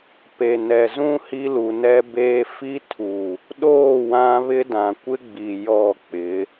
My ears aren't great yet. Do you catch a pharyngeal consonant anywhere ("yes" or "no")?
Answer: no